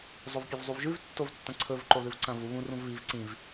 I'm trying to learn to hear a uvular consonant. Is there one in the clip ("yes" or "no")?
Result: no